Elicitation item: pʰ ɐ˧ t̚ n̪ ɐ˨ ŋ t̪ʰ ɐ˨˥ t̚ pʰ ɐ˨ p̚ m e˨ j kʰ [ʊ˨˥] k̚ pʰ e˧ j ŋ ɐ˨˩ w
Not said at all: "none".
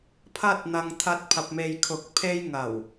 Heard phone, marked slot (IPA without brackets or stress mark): ʊ˨˥